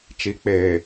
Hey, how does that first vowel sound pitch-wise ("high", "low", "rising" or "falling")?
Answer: rising